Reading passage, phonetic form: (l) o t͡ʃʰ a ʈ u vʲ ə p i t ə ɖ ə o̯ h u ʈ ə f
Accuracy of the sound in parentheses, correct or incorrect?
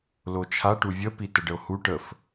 correct